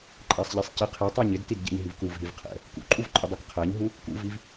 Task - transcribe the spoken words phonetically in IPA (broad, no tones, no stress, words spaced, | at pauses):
ǃʼæsˤʎɛsˤcɪ qʰɛtˤæɲ ɪdtidɟɛ̰ɲ ɦivkuv ɦivqʰɛ̰ | kṵǃʼuvǃʼɪ dˤukqʰæɲɦu | kṵviv